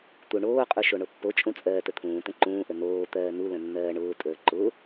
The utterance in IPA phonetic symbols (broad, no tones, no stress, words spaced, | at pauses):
t̪uɳoːqʼu ʃoɳopːot͡ʃʼũ t͡sʼɜːtət̪ʰũːt̪ə̃ ǃũːʔə noːt̪ɜː nulə̃ nːɜːɳʊːtʼəː ǃʊ